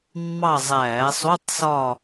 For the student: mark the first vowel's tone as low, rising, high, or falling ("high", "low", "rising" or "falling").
falling